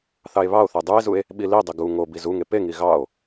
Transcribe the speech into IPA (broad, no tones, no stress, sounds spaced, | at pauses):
θ ɑ e̯ β ɑ o̯ θ e dˤ u e̯ z u e̯ | ɓ i l i dˤ i ɡ u ŋ o b i z u ŋ e p e ŋ i ɣ ɑ o̯